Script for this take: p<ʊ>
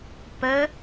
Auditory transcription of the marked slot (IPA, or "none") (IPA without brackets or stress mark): ə